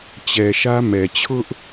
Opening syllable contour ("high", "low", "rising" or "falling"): low